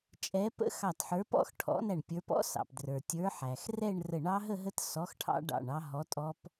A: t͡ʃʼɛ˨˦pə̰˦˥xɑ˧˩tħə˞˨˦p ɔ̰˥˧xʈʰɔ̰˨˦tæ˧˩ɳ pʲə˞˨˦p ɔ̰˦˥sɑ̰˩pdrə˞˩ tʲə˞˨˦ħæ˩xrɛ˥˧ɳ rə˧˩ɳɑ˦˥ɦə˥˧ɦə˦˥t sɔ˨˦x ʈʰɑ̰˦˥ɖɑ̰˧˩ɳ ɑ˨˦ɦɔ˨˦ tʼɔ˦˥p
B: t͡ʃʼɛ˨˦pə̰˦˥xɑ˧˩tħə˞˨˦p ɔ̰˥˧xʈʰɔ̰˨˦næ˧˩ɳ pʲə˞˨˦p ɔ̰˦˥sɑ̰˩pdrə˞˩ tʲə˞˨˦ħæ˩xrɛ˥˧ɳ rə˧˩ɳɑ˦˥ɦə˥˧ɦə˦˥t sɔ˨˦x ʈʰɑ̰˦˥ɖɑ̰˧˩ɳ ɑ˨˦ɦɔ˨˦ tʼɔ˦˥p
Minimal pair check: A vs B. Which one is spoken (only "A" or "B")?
B